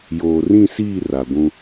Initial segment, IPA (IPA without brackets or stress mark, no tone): j